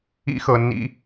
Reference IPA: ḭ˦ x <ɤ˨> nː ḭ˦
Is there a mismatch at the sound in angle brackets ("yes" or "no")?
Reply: no